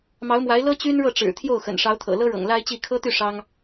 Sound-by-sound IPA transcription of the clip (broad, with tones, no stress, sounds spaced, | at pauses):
m ɑ˧˥ ʊ̯ m w a˧˥ ɪ̯ l ɤ˥ t͡ɕ y˥ n ɻ ɤ˥˩ ʈ͡ʂ ɻ̩˨˩ t̪ʰ j o˥˩ ʊ̯ x ə̰˨˩ n ʂ ɑ˧˥ ʊ̯ t̪ʰ ɤ̰˨˩ l ɤ˥ ɻ ɤ̰˨˩ ŋ l a˥ ɪ̯ t͡ɕ i˥˩ kʰ ɤ˥ t̪ y˥˩ ʂ ɑ˥ ŋ